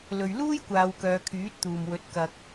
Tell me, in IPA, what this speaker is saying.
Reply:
l ɵ˨ ɥ l uː˥ j kʷ aː˨˧ w k œː˨˧ kʰ yː˨˥ t̚ t̪ uː˨ m w ɵ˨˥ t̚ k ɐ˧ k̚

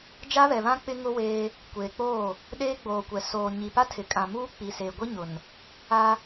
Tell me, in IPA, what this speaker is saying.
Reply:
d͡ʒ a˦ β ɛ˨ β ã˦ k͡p ɪ˦ ŋ ʊ˦ w eː˦ | kʷ eː˨ k͡p oː˦˨ | ɗ eː˦ ɡ͡b oː˨ kʷ ɛ˨ s oː˨ ɲ i˨ p a˦ tʰ ɪ˨ kʼ ã˨ m uː˦ k͡p i˨ s e˨ ɡʷ i˦ ɲ ʊ˨ n | a˦

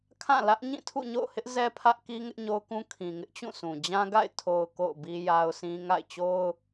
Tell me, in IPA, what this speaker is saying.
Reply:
kʰ ã˦˨ l ä˦ ʔ ɲ ĩ˦˨ tʰ ṵ˦˨ ɲ o̰˦˨ ʊ̯ h ɪ˦ ʔ z ɛ˦ pʰ ä˦ ʔ k i˦ ŋ ɪ˦ ʔ ɲ o˦ ʊ̯ k ũ˦ kʰ ĩ˨ ŋ ɪ˦ ʔ t͡ɕ ũ˦˨ sʰ ũ˨ d͡ʑ ã˦ ɡ a̰˦˨ ɪ̯ tʰ o˨ ʊ̯ k o̰˦˨ ʊ̯ b i˦ j a˦ ʊ̯ s ĩ˦ ŋ a̰˦˨ ɪ̯ t͡ɕ o˦ ʊ̯

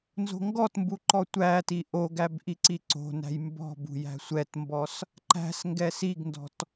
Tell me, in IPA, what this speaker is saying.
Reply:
n z o̤ ŋ ɡ ɔ t m b u ǃ ɔ tʷ æ t i ʔ o ɡ æ b ʔ i ǀ i ǀ o̤ n æ̤ j m b ɔ̤ b ṳ j æ̤ sʷ ɛ t m b ɔ s | ǃ æ̤ s ŋ ɡ ɛ s i ɡ n d ɔ̤ t

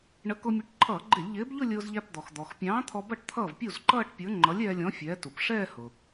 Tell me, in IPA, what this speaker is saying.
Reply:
ɳ ə˨˥ k ʊ˧ mʲ ʊ˨˥ ʈ ǃʰ ʌː˧˩˧ ɡ͡ǃ ɪ˧˩˧ lʲ ʎ ɪː˨˥ b ʎ ʊ˥˧ lʲ ʊː˧ z ʎ æ˧ p d̪ ɔ˩ x d̪ ɔ˩ x pʲ ɑ̃ː˨˥ t̪ʰ ɔ˧ b ʌ˥˩ ʈ t̪ʰ ʌː˥˩ v pʲ u˥˩ z ǃ ʌː˥˧ ʈ pʲ ə˞˨˥ ŋ͡ǃ ʌ˨˥ lʲ ɛː˧ lʲ ɔ̃˨˥ fʲ ɛː˨˥ t u˩ p ʂ ɛː˥˧ h ʊ˩

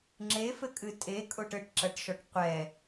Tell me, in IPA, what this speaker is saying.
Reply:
ŋ͡ǁ e f ɘ kʼ ɨ tʼ e kʼ o ʈ ɘ ʈ ǁ ɐ ʈ ʃ ɔ ʈ qʷ ɛ

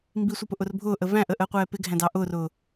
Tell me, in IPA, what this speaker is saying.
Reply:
m b i sʷ ʌ p ʊ ʔ ʊ r bʱ ʊː ʔ ə v æ̃ ʔ ə ʔ əː qʷ ɛː p ɪ ɡʱ æ̃ d ɑ ʔ ʊː r ʊː

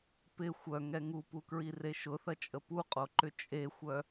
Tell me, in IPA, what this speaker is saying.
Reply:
p ɪ xʷ œ ŋ ɛ ŋ u p u k ɹ i r e ʃ ʊ θ ɐ t͡ʃʼ ə p u qʼ o ǃ ʏ t͡ʃʼ e xʷ œ

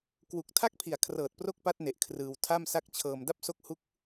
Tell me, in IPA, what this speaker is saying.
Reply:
k w u˨˩ k̚ tʰ a˥˩ k̚ pʰ i˨˩ a̯ kʰ r ɤː˨˩ t̚ p r o˦˥ k̚ p a˦˥ t̚ n e˨˩ ʔ kʰ r ɯː˧ w tʰ a˥˩ m s a˦˥ k̚ t͡ɕʰ ɤː˧ m d a˦˥ p̚ s o˦˥ k̚ h u˥˩ k̚

